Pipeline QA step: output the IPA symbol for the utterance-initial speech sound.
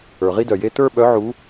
ə˞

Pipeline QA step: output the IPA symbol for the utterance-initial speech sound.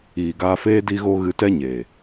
iː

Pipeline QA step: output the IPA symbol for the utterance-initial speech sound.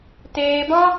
t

